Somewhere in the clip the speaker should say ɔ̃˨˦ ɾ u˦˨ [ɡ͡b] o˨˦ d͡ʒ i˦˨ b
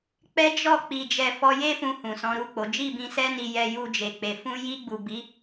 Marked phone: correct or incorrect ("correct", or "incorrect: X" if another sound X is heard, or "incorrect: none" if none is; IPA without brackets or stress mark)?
incorrect: k͡p